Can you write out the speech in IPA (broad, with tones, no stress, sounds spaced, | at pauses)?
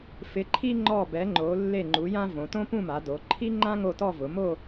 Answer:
f ɪ˩˧ ǃʰ i˧ ŋ͡ǃ ɔ˧˩ b ɛ˩˧ ŋ͡ǃ o˩˧ lː e˧˩ ŋ͡ǃ u˩˧ j ã˧ v õ˩˧ t õ˥ p ũ˥˧ m a˩˧ d o˩˧ ǃʰ i˥ ŋ͡ǃ ã˥ ŋ o˥˧ t ɔ˥˧ v ʊ˩˧ m o˥˧